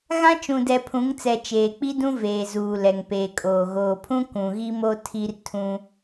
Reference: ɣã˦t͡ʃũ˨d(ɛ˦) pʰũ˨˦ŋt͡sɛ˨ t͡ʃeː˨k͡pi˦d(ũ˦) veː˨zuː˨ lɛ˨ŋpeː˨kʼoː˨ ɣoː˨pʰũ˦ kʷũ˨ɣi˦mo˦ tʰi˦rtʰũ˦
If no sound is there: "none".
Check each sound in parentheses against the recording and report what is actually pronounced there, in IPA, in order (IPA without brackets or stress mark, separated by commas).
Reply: ɛ˨, ũ˦